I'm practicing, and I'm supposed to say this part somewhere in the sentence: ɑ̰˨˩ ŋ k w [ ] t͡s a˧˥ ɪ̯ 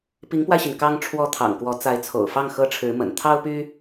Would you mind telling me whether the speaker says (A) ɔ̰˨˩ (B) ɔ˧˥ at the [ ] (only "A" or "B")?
B